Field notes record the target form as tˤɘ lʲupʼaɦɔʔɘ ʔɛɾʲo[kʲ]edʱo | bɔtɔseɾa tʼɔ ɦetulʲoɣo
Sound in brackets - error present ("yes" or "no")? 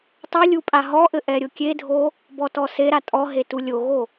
no